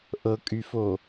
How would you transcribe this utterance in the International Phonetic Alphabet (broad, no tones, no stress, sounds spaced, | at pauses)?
ʔ ɤ kʼ y f o